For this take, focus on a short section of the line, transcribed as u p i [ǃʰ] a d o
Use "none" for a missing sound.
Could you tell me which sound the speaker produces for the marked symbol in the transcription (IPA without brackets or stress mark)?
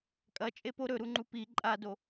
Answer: ǃʼ